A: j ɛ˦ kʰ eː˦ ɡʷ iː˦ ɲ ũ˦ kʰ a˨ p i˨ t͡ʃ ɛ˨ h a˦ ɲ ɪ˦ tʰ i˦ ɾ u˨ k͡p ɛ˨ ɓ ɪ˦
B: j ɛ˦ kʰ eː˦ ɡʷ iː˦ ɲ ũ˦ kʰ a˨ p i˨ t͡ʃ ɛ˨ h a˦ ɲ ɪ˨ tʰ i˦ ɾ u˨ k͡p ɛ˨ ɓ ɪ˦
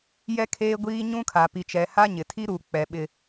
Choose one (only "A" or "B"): B